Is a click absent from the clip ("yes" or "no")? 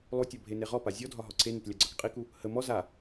no